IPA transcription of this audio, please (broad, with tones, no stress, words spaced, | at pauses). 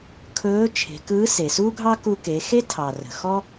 kʰɵː˧˥t͡ʃʰe̤˩˧kɯː˧˥ se˩suː˥ɡʱɑ˥ kuː˧ke˩˧xe˥tʰɑ˩ rə̤˩xɔ˥